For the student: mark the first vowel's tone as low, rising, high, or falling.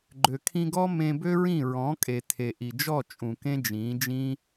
low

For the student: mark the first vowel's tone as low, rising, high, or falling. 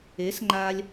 rising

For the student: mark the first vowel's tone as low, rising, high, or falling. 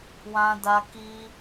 high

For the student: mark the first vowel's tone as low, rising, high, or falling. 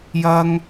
high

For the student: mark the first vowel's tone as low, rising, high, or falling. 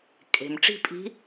low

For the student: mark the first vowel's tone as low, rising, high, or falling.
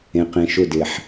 low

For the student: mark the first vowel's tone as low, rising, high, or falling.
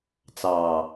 low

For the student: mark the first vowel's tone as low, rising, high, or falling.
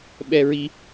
high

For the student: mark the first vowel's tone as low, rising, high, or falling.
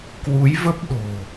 rising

